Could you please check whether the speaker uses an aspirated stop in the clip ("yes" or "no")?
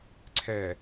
yes